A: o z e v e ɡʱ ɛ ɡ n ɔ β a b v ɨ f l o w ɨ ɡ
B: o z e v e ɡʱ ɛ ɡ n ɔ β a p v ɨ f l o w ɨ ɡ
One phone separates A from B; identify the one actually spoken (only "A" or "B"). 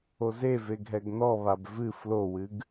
A